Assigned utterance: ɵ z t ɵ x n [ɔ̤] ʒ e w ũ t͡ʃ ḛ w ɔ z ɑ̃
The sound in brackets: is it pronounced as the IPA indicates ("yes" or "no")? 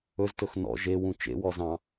no